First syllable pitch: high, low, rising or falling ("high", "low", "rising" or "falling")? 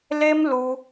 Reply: high